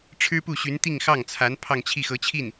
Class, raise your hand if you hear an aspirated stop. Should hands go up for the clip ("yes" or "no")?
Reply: yes